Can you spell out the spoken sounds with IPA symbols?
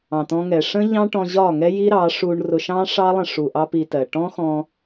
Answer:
ɑ̃˨ t̪ ɔ̃˧ ŋ ɛ˨ ʂ ə̃˦ ʎ ɑ̃˦ ʈ ɔ̃˧ ʑ ɒ˦˨ ŋ ɛ˦ j i˦ ɾ ɑ˨˦ ʂ u˧ ɳ r ʊ˧ ʃ ɑ̃˦ ʂ ɑ˦ lˠ ə̃˧ ʂ u˨ ʔ ɑ˦ p i˧ t ɜ˨ ʈ ɔ̃˦ x ɔ̃˧

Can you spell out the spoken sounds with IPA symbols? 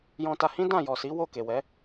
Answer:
j ɔ̃˧ t a˧ h ĩ˦ d ã˦˨ j ɔ˨ s i˨˦ w o˦˨ k e˨ w ɛ˨˦

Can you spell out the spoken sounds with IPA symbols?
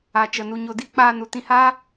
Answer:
a˨ t͡ʃ ə˨ n u˨ ɲ o˨ d i˦ k͡p aː˧ n u˨ t ĩ˧ h aː˦

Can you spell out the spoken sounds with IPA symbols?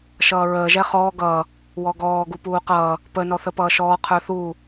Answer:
ʃ ʌː ɹ əː ʒ ɛ χ ɔː ɡ ʌː | w ɔ ɡ ɔː ɡ u p uː q ʌː | p ə n ɔ θ ə p ʌː ʃ ɔː qʰ ə˞ θ uː

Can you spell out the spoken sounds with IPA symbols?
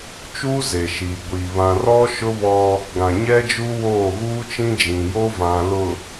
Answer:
t͡ʃ uː˦ z e˨ ʃ iː˨ ɡʷ iː˨ β ã˨ r ɔ˦ ʃ ʊ˦ β ɔ˦ | ɡ ã˨ ɲ ɛ˦ d͡ʒ u˦ w oː˦˨ ɣ uː˦ t͡ʃ ĩ˦ d͡ʒ ĩ˨ j oː˦ v ã˨ l ʊ˨

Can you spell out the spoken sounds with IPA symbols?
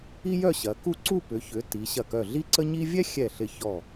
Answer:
i˥ j œ˥˧ ɕ ɐ˩˧ k u˥˧ ǀ u˥˧ p ʏ˩˧ ç ʏ˩˧ t i˩˧ ɕ ɐ˧˩ k œ˧˩ ɮ i˥˧ ǀ ə˥ ɲ i˥ vʲ ɛ˥ xʲ ɛ˧˩ ɬ ɪ˧˩ ç ɔ˧˩

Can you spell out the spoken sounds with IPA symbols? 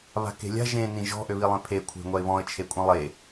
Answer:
β a̤ k e̤ lʲ a̤ ʒ ẽ n ĩ ʒ ɔ̤ ʔ ø β i lˠ ẽ pʰ e kʷʰ e̤ ŋʷ a ɪ̯ β ɔ̃ ə̯ t͡ʃʰ e kʷʼ ĩ lˠ e

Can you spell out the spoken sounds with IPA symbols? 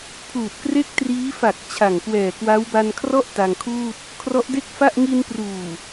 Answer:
pʰ uː˨˩ t̚ k r e˥˩ k̚ t r iː˦˥ f a˨˩ k̚ t͡ɕʰ a˨˩ ŋ k w ɛː˨˩ k w a˦˥ w b a˧ n kʰ r ɔ˥˩ ʔ t a˧ ŋ kʰ uː˥˩ t̚ | kʰ r ɔ˦˥ ʔ d e˥˩ k̚ f a˥˩ ʔ ŋ i˧ n p r uː˨˩

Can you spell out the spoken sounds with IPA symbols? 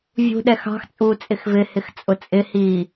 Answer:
vʲ ṳ ɗ ɛ x ɑ̤ x t͡sʼ uː t͡sʼ ɪ x v ɪ h ɪ x t͡sʼ ʊ t͡sʼ ɪ h iː

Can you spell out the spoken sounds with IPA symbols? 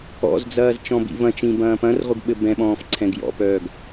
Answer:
ɔ̰ z d͡z ɐː z t͡ʃ ɔ̃ b ḭ v ɐ̃ t͡ʃ ĩ b ɐ̃ː p ɐ̃ r ʁʷ ɘ ɡ ɓ ɘ b ɛ̃ ɓ ɔ̃ː f ǀʰ ɛ̃ ɡ j ɔ̰ p œː ɡ

